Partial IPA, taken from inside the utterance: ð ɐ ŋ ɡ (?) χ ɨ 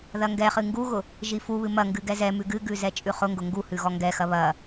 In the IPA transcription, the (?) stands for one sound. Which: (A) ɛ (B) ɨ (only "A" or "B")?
A